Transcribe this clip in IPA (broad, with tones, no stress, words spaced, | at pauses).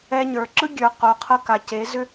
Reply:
ɛ˧ɲə˞˨ ǁɯ˦ɡʲə˞˨qo˨qʰɤ˧ ka˨ce˨˦ zʏ˧